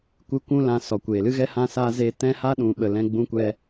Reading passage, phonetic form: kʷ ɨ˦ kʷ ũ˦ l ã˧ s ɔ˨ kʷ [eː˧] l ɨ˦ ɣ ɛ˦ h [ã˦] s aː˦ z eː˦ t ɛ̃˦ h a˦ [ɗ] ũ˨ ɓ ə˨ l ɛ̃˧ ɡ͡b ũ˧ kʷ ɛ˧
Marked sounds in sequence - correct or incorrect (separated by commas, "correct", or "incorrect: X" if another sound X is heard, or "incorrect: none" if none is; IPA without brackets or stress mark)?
incorrect: eː˨, correct, correct